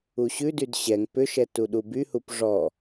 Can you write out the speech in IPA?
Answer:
u ɕ ʉ d y d ɕ ɛ ŋ p ʏ ʃ ɛ t u ɗ u b y h u p ʐ ɔ

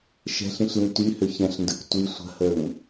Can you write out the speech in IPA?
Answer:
ʃ ɛ̤ ɬ ĩ ɬ l ĩ t y h ø ç ɛ̃ ɬ n d ə k tʷ i sʷ ə̤ h ə ŋ

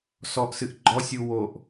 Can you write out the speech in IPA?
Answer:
s ɔ ʔ s ɨ ʔ ɡ͡ǃ ɔ sʲ u w o ʔ

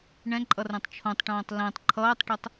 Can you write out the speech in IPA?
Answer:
ɳ ɛ̃ ǃʼ ʌ r ɛ̃ tˤ t͡ʃʰ õ tˤ ʈ õː tˤ l ɛ̃ tˤ ǃʰ ʌː tˤ ʈ ɛ tˤ

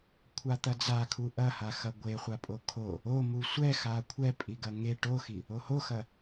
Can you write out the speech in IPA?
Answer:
kʷʰ a t̪ ɐ d͡z a kʰ u ʔ ɐ h a x ɐ ɡʷ e χʷ a pʼ o kʰ o | o m u sʷ ɛ x a kʷʰ ɛ pʼ i ɡ ɐ ŋ e ʈ o x i | o h o x ɐ

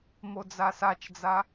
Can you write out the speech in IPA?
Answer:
m o d͡z a s a t͡ʃ d͡z a

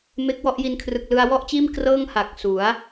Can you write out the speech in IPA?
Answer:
m e˦˥ k̚ w ɔ˥˩ ʔ j i˧ n kʰ r ɯ˨˩ k̚ l ɯ˧ a̯ w ɔ˥˩ ʔ t͡ɕ iː˥˩ m k r ɤː˥˩ ŋ h a˨˩ k̚ s u˩˦ a̯

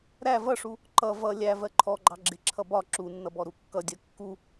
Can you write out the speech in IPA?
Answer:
ɾ æ v ʌ ʂ u | ǃ ʌ v ʌ lʲ æ v ɜ ǃʰ ɔ ɡ͡ǃ ɑ ɡ͡ǁ ɪ ǁʰ ʌ b ɒ ǁ u nː ʌ b ɔ ɾ u kː ʌ dʲ ɜ kː u

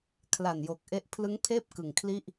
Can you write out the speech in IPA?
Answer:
kʰ l a˨˩ n j o˨˩ k̚ ʔ e˦˥ ʔ pʰ l ɯ˦˥ ŋ pʰ eː˥˩ p̚ k ɯ˨˩ ŋ kʰ l i˥˩ ʔ

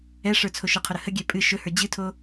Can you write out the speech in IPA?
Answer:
ɛ ʂ ə˞ t͡sʰ o ʃ ɨ qʰ ʊ ɾ ə h ə ɡʲ ɛ pʼ ɨ ʃ ɵ h ə˞ d͡ʑ ɨ tʰ o

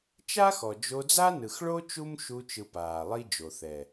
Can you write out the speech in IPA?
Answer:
t͡ʃ a˦ x ɔ˨ d͡ʒ o˧ d͡z a˦ n ɯ˨ x ɭ o˦ t͡ʃ u˦ m ʃ u˧ t͡ʃ ɯ˨ p aː˨ lˠ i˦ d͡ʒ o˨ θ ɛ˨

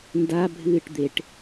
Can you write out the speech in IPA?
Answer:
n d a bʱ ɨː ʈ d̪ e ʈ

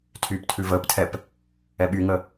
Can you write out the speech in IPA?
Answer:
tʰ yː p tʰ ʉ v əː p tʰ ɛ p | ɛ ɓ y ŋ ə

